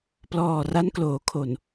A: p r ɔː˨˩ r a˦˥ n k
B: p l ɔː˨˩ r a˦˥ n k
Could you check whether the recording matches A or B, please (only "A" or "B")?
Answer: B